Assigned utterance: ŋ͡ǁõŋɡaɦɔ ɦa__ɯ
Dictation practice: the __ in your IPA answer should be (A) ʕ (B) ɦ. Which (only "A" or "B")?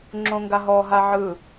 A